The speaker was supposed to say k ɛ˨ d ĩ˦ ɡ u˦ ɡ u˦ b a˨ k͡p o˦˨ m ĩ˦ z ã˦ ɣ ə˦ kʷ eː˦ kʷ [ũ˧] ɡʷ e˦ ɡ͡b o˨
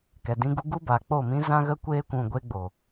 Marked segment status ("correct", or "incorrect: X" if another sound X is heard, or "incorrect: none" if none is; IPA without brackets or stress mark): correct